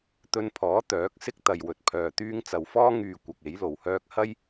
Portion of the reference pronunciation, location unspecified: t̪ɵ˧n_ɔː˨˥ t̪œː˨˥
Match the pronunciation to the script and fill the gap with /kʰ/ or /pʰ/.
pʰ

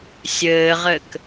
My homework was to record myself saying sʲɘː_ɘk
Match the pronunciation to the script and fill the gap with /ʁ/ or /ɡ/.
ʁ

